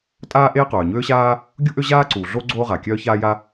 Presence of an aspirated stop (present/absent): absent